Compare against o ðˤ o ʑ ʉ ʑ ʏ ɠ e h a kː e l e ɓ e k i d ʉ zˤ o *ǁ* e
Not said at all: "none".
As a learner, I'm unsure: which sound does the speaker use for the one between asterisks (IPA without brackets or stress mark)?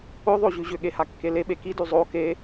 k